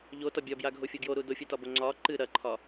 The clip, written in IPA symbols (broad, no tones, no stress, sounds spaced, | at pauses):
ʎ o t ɒ bʲ ɒ b j a ɡʱ o fʲ o ɡ j o ɾ u d o fʲ ɨ t ɒ b o ŋ͡ǀ ɒ ǃ ɨ ɾ ɐ ǃʰ ɒ